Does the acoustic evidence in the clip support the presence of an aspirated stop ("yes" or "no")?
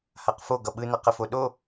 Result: no